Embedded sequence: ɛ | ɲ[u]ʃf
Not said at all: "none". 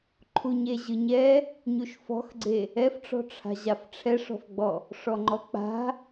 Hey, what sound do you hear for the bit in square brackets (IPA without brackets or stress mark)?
u